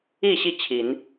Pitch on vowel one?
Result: falling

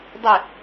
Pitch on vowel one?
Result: falling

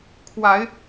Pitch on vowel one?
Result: rising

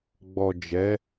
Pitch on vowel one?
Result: low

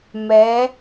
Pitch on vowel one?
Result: rising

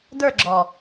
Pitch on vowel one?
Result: falling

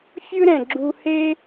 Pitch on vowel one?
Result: high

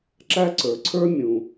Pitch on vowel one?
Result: high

